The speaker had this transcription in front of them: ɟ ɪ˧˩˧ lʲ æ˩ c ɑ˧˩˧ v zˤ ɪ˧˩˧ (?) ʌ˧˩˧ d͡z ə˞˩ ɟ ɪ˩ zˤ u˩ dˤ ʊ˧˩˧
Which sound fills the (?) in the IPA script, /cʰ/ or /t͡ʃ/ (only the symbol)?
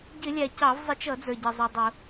t͡ʃ